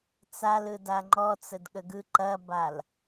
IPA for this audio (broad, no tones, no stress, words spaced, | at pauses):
t͡sal ɯdaŋ͡ǃɔt͡səd ɠəɡɯ ǃɐbal